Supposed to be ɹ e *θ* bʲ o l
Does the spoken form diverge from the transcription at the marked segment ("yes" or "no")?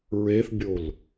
no